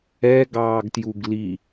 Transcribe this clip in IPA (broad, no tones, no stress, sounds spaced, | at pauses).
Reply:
ɛ ɡ ɑː ɡ t j u ɡ l i